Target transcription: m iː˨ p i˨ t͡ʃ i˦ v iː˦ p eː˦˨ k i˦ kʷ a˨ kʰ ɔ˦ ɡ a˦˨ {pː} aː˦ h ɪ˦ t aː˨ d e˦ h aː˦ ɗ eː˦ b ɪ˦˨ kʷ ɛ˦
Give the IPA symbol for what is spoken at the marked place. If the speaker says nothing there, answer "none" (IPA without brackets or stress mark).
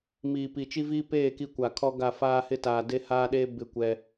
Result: f